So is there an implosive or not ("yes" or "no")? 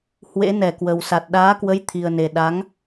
yes